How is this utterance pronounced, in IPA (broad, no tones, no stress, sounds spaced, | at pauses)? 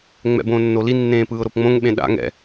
ŋ͡m ɛ̰ b õː nː o l i nː ẽː p ɯː ʊ̯ ɾ o p ŋ͡m õ ŋ ɓ ẽ ɗ a̰ ŋ ɛ̰